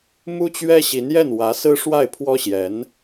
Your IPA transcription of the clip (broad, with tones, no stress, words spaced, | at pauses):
mu˥t͡ɕɥɛ˥ɕi˧˥njɛ˥˩n wä˧˥sɹ̩˥ʂwa˥˩ɪ̯pʰwɔ˥ ɕjɛ˧˥n